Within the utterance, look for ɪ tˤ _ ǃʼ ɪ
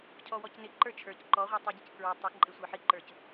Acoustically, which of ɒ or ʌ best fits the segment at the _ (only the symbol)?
ʌ